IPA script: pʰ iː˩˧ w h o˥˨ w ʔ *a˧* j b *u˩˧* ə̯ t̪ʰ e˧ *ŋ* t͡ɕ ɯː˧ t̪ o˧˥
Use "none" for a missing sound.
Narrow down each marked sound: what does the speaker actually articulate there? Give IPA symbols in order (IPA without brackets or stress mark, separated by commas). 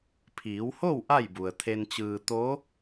a˥˨, u˩, n